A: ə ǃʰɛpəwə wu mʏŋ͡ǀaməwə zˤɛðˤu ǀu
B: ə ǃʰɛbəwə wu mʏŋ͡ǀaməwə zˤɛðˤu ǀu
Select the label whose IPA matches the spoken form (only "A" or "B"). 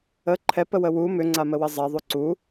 A